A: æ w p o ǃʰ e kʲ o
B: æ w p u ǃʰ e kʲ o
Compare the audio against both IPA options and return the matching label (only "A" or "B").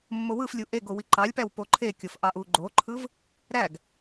A